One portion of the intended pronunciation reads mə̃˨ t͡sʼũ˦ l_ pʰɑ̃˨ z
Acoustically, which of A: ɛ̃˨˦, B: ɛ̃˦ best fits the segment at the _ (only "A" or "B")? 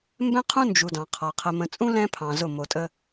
B